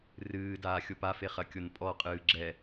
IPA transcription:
rɨːdaː xʲopafe χɐkʲonpʼɔqʼɨː ɡ͡ǁɛ

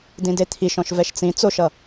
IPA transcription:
dĩdet̪ʰiʃɔ̃ʃ vɛʃt͡sĩ t͡soʃʌ

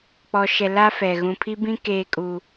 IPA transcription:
k͡pɔ˨ʃɛ˨la˦fɛ˨ ɣũ˨pʰi˦bĩ˦ keː˦ kʼu˦

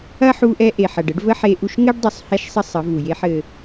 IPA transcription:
ɐ˦ħu˧ʔɛ˧ ʔe˨ħɐ˨ɖ ə˨˦ɖvə˦ħe˧ʔu˧ʃ ŋɘ˦ɖ dˤu˨sˤhɛ˧ʃsˤə˧ sˤə˨˦vu˨je˦ħɘ˧

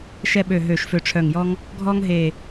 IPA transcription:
ʃɛ˧ɓø˨˩ ɦø˨˩ʃfø˨˩ʈ͡ʂʰœ˨˩ŋjɔ˧ŋ | ɡʱɔ˧ŋɦe˨˩

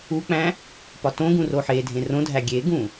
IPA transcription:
uk͡pæ̃ | pɒtõɡũ roħedʱẽ rõdʱæ ɡʲeɡũ

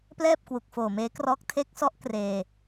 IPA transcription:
plɛː˥˩p̚kwu˨˩k̚foː˨˩meː˦˥ krɔː˦˥k̚ tʰe˦˥k̚sɔ˦˥ʔ kreː˧

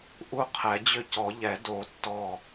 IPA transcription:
ʔu˦˥qʰɛ˨˩˦d͡ʑʏ˥˩ cɔ˨˩˦ʎɛ˨˩˦ do˨˩˦ tːɔ˧˩

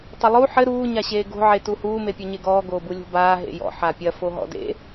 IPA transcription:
tˤɘlˠu ħɘ ɾuː ɲaɕeːɡo̤ ʕetuhuː mepʲɔɲeɡɔː ɡoːbulʲo̤baː ɦḛjɔ̰ ħapʲɐ foɦɔ̰dḛ

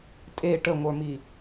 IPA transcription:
tʼe ʈəŋʷə˞mi

